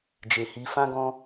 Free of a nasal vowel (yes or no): no